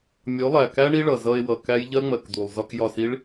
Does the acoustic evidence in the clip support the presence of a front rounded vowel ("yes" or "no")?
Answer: no